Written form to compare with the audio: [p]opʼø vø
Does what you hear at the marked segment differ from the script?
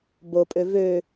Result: yes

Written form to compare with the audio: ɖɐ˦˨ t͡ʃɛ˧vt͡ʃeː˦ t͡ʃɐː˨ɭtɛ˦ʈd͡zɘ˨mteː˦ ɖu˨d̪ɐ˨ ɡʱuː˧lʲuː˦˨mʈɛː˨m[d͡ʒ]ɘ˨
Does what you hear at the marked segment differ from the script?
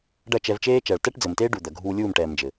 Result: no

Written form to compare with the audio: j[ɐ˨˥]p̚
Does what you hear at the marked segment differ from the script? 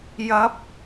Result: no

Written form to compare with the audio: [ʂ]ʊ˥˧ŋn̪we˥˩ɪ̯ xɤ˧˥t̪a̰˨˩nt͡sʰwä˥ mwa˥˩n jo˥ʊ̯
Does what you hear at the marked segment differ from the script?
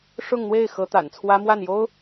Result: no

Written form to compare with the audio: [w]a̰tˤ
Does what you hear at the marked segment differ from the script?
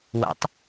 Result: no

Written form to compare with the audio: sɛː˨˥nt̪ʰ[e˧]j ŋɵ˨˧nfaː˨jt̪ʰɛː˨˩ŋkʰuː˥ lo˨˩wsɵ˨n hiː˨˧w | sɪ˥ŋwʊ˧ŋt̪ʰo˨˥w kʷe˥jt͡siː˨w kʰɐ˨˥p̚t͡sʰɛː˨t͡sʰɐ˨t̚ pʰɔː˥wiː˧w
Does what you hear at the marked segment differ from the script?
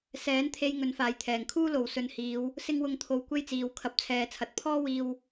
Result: no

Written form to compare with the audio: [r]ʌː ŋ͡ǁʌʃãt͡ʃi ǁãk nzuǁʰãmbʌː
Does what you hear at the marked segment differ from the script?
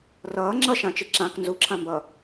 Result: no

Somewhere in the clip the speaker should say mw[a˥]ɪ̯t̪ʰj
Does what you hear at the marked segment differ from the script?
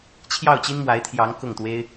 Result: yes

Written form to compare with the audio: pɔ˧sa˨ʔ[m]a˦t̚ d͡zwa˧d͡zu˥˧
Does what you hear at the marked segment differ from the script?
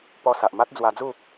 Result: no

